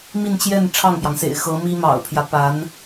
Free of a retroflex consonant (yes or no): no